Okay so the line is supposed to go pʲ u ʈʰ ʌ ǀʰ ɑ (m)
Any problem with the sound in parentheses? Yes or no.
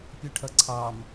no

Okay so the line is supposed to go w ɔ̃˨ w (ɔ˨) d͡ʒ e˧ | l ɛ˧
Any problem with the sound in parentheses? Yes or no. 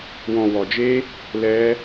no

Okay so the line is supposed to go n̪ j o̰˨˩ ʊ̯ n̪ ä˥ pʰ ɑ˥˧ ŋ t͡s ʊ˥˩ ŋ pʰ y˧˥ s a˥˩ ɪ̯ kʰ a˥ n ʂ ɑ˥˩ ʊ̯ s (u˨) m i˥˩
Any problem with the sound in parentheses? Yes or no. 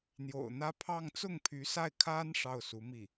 yes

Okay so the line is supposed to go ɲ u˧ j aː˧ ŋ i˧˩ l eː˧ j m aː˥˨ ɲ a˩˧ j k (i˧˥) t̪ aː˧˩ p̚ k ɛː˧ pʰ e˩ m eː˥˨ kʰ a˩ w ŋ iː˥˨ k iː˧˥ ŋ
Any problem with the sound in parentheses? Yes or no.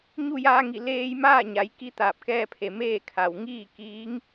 no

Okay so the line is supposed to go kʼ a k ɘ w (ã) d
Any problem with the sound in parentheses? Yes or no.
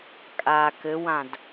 no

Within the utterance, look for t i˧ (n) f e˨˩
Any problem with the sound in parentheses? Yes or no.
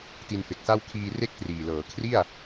no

